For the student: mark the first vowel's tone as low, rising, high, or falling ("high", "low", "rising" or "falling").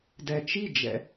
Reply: low